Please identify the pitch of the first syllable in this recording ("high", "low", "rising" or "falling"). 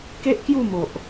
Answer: high